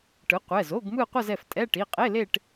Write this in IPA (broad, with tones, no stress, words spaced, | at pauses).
ʈɯ˩˥qʷɛ˩˧˩zo˧˥˧ɡ mɯ˥˧qʷʌ˥˧zɛ˩˧˩f tʼɛ˧˥˧ ʈi˩˧˩qʼe˧˥˧ le˥˧ʈ